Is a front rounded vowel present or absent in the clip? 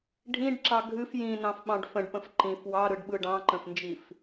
absent